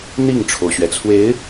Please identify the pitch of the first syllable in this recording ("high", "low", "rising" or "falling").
falling